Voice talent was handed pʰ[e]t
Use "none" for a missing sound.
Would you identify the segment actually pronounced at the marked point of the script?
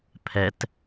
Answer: ɛ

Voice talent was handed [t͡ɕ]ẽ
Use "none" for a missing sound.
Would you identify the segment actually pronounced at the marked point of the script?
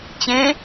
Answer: t͡ɕ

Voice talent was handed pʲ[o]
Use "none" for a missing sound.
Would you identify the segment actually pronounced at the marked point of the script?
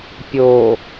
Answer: o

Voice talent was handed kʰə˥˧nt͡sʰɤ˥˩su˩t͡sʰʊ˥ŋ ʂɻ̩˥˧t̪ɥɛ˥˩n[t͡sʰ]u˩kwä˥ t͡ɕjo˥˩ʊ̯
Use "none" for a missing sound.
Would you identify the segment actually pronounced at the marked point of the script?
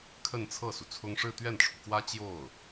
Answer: ʈ͡ʂʰ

